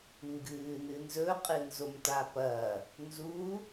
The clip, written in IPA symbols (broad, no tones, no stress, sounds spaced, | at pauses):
ŋ ɡ ɨː n ɨ n z ɵ qʼ ɨ n z o m t a p ɐː | n z u